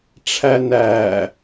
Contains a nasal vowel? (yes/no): no